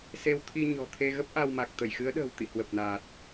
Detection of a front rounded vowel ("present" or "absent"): absent